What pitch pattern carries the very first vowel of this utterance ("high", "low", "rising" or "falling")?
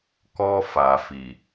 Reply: high